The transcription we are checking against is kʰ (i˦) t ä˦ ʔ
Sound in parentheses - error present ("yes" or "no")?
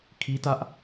no